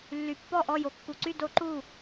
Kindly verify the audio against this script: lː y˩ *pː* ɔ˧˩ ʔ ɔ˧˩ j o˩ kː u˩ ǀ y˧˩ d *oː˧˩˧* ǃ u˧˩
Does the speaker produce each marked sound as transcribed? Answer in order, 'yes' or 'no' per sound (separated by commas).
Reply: yes, no